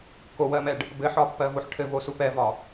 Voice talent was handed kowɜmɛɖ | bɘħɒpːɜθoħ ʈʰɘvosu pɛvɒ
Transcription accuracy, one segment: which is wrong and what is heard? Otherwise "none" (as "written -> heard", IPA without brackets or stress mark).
θ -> v